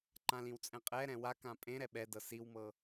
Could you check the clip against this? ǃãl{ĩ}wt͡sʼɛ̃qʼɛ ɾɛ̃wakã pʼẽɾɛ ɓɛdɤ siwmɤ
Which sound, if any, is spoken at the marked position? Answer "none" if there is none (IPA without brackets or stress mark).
ĩ